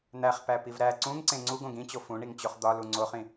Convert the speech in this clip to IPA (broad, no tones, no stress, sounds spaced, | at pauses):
n̪ æ χ p æ p i v ɾ æ ǀ ũ ŋ ǀ ẽ ŋ͡ǀ u ɡ õ ɡ ĩ t͡ɕ o f ũ ɳ i ŋ t͡ɕ o χ d̪ ɒ l u ŋ͡ǀ o χ ĩ